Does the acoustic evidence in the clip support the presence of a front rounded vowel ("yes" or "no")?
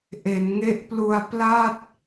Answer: no